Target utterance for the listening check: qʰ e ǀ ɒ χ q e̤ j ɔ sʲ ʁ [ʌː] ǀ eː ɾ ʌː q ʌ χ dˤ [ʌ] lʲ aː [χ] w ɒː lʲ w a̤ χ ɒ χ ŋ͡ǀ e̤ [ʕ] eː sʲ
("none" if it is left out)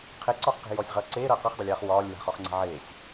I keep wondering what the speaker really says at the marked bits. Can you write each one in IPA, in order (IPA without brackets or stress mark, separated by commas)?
ʌː, ʌ, χ, ʕ